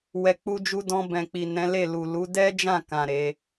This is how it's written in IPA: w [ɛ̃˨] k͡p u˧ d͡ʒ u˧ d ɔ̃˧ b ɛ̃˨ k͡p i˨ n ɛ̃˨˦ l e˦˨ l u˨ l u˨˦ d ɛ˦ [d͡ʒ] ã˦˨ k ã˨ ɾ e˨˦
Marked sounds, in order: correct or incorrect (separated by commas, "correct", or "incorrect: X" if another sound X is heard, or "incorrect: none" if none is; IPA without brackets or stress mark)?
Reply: incorrect: ɛ˨, correct